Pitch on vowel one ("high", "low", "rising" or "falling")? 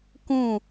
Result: falling